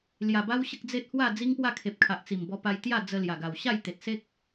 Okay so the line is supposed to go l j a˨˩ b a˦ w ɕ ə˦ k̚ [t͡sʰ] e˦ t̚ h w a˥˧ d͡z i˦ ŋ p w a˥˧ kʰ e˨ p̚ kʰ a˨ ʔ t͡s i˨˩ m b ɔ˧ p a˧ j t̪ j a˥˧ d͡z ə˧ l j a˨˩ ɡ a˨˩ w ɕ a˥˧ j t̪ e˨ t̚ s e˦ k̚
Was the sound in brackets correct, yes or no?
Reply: no